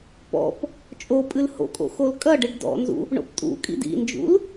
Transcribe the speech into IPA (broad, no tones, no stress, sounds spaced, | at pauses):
p ɔ̰ p | t͡ʃʼ o pʼ ɨ l h o̰ kʼ o̰ x o l kʼ ɐ ɖ ɨ ɖ d ɔ̰ n z ṵ | ɳ o̰ p tʼ ṵ kʼ ḭ d ḭ n d͡ʒ ṵ l